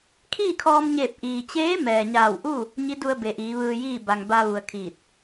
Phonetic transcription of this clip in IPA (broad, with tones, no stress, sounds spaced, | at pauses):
kʰ iː˥˨ kʰ ɔː˧ m ɲ eː˧˩ p̚ ʔ iː˩ t͡ɕ eː˧˥ m ɛː˩ ɲ aː˧˩ w ʔ u˥˨ | ɲ i˧˥ d u˧ ə̯ b e˩ ʔ iː˩˧ ʋ ɯː˧ j iː˥˨ b a˩ ŋ b a˧ ʋ u˩ ə̯ kʰ iː˧˩ t̚